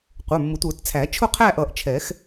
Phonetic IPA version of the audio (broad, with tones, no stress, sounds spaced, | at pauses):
qʷ ə˞˩˧˩ mː ʊ˨˩˦ tʷ ə˞˨˩˦ t t͡sʰ æ˨˩˦ t͡ʃʰ ʊ˥˧ qʰ æ˥˧ ʔ ʌ˨˩˦ ʔ t͡ʃʰ ɛ˨˩˦ x